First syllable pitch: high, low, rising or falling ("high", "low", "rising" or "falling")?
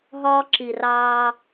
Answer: high